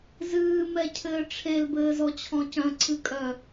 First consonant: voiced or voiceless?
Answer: voiced